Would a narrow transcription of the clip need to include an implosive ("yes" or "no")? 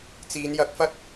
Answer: no